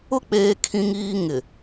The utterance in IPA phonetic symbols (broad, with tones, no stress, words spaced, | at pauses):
ʊ˦ k͡peː˦kʰĩ˦ŋiː˦ ŋɪ˨